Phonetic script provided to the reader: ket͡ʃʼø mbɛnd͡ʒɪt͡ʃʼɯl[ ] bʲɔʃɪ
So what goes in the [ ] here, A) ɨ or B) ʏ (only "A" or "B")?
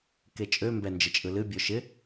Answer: A